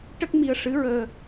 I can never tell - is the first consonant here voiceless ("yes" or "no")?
yes